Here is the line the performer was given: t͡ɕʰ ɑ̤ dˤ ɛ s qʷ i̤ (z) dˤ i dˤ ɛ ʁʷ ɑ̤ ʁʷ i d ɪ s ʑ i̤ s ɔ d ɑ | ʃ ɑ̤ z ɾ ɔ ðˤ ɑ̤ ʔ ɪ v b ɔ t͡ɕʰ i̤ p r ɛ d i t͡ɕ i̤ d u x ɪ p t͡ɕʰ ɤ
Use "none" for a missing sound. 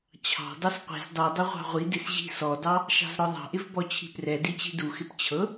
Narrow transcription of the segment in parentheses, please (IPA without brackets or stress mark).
z